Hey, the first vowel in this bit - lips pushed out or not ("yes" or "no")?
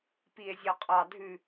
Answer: no